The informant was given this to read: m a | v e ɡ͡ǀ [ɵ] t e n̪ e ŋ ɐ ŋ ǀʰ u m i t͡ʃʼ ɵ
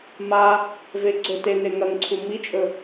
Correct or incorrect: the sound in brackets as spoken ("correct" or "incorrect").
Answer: correct